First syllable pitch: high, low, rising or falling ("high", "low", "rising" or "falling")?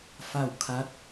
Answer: falling